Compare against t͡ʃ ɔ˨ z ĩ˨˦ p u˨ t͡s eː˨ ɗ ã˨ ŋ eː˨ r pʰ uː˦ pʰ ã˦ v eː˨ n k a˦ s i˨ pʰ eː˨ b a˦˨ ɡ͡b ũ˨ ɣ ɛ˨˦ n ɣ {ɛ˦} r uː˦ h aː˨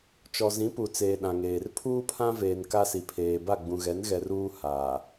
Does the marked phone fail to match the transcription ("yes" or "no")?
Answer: yes